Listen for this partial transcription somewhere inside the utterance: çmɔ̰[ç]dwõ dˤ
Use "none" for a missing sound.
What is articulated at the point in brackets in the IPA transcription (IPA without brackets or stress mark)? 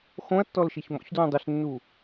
ç